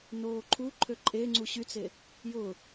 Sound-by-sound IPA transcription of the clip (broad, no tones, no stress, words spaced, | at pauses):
noːǃʰuǃʰø ǃʼe ŋ͡ǀuɕyt͡se | jʊ